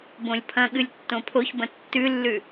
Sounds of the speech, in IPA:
b õ lʲ pʰ ɐ̃ ɠ ɨ lʲ tː õ pʰ o ç b ɐ̃ tː ʉ lː ʉ

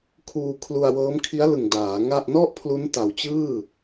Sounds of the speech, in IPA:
kʰ uː˧ kʰ l u˧ a̯ w ɤː˦˥ m kʰ i˦˥ a̯ l ɯ˨˩ ŋ d aː˩˦ ŋ a˥˩ ʔ n ɔ˥˩ ʔ pʰ l u˦˥ n t a˨˩ w t͡ɕ ɯː˥˩

